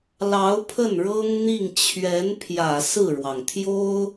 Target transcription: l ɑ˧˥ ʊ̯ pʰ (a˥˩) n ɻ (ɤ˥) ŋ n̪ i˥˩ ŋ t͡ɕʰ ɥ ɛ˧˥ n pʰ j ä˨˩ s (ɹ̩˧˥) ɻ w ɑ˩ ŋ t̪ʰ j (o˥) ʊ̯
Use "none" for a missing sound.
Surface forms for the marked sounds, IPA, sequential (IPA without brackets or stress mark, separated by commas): ə˥˩, ɤ˥, ɹ̩˥˩, o˥